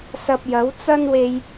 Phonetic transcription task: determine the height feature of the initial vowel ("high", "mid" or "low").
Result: low